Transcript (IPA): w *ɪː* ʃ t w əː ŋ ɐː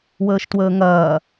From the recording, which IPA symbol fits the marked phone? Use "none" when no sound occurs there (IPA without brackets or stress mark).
əː